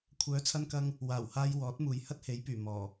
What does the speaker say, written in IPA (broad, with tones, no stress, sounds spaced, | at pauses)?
kʷʰ œː˨˥ t͡sʰ ɐ˧ n k ɐ˧ ŋ | w aː˨˩ w h aː˧ j w ɔː˨˥ t̚ m uː˨ j h ɐ˥ t̚ h e˨˥ j p yː˨˩ m ɔː˨˩